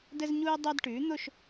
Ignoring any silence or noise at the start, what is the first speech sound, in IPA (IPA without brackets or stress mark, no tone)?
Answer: d